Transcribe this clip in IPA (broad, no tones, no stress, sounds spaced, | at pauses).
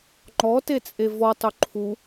ŋ͡ǃ ɔ t e t͡sʼ e v ɔ tˤ ɵ ǃʰ u